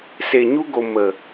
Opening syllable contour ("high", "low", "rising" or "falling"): low